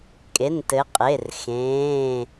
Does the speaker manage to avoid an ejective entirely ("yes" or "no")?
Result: no